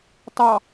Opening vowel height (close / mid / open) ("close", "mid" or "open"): open